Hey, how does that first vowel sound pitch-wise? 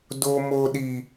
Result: high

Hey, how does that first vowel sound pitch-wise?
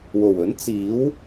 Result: low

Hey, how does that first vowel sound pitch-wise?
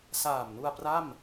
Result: low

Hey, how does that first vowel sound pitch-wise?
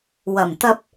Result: low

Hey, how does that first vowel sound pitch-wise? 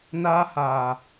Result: high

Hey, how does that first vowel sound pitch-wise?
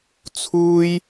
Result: high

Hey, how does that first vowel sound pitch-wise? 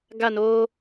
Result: falling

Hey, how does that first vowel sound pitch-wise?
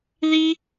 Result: high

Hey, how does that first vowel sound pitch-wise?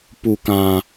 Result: low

